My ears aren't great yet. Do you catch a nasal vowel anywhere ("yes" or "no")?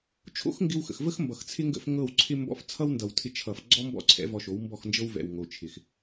no